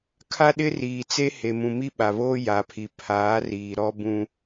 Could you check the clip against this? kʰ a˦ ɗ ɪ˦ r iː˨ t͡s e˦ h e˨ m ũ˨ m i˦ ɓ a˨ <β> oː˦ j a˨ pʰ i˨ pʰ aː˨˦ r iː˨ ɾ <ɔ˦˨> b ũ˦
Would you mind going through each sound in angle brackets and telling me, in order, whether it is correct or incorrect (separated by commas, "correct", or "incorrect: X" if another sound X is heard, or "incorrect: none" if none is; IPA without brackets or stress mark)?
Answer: correct, incorrect: ɔ˦